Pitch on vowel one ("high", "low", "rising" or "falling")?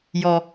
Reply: low